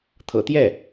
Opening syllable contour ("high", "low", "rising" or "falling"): low